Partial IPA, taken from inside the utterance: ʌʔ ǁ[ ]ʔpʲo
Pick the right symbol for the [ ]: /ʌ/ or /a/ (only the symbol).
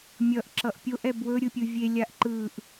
ʌ